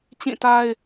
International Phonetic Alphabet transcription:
t͡ɕ ĩ˦˨ t a˦ ɪ̯

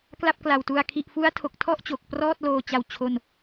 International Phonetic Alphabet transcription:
k l a˥˩ p̚ k l a˨˩ w t u˧ a̯ kʰ i˨˩ ʔ f u˦˥ a̯ tʰ o˨˩ k̚ tʰ ɔ˥˩ ʔ t͡ɕ o˨˩ k̚ p r ɔː˥˩ t̚ l oː˧ t͡ɕ a˧ w t͡ɕʰ o˥˩ n

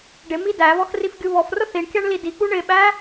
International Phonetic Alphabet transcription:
ɖ ɪ m i d æ β ɔ x r i f ɡʲ u β ɔ f r ʊ θ i ɳ kʲ ɑ ɳ l i d i k͡p u ɳ ɪ ɓ æ

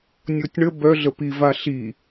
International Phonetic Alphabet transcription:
nʲ o tʲ ɳ ə b œ ɮ ə p i v a ɬ i

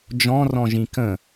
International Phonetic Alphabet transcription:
d͡ʒ ɔ̃ r ɔ̃ ʒ ĩ k ə̃

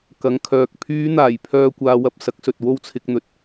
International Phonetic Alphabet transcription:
k ɐ˨˥ ŋ kʰ œː˨ k̚ pʰ yː˨˧ n̪ aː˨˩ j pʰ œː˨ kʷ aː˧ w ɐ˧ p̚ s ɐ˨˥ k̚ s ɵ˨ t̚ w o˥ w t͡sʰ ɪ˧ k̚ n̪ ɵ˨ t̚

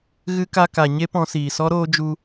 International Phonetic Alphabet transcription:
ɣ ɨ˦ k a˦ k a˧ ɲ e˦ p ɔ̃˧ s iː˨ s ɔ˦ ɾ oː˦ d͡ʒ u˦

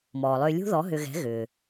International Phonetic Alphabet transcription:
m ɔː˩ lˠ ʏː˧ lʲ ṳ˥ ð ɔ˨˥ ɦ ʏ˧ ɣ ɛ̤˨˥ ɣ ʏː˩

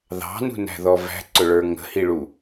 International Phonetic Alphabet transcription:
ð ɑ̤ n ṳ n æ̤ ð ɔ v æ̤ ǀ ʊ ɭ ə˞ ŋ ə̤ h i ɭ u

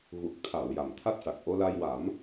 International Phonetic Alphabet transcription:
ɣ u˨˩ k̚ t̪ʰ a˨˩˨ w j a˨˩ m t̪ʰ a˦˥ k̚ ʂ a˨˩ k̚ ʔ o˧ l a˧ j w a˨˩˦ m

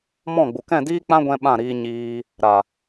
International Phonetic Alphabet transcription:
m ɔ̃˦˨ ɡ͡b u˨ k ɛ̃˦˨ d iː˦ k͡p ã˦ ɡʷ ɛ̃˧ ɓ ã˦˨ ɾ iː˧ ɲ iː˧ | ɾ a˨

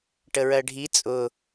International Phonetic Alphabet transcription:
ʈ ə ɹ ɜ ɖʱ i t͡sʼ ʊ

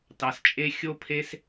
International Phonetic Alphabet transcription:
t ɑ˨ s t͡ʃʼ e˧ xʲ o˦ pʰ e˦ s

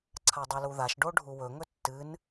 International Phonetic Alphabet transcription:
ǀʰ a dˤ i l u ð a ʃ ɖ o ɖʱ u w ɵ ŋ ɵ tː ɨ n

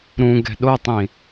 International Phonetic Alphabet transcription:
ɾ ũ ɡ ɛ̤ ɗ o tˤ ĩ

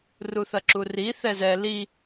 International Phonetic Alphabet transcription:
r u θ ɐ ǁ u r i θ ɛ z ɛ l i

